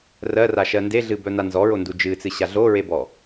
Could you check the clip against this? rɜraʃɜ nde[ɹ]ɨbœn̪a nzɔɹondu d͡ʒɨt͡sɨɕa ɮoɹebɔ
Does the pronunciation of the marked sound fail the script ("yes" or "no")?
yes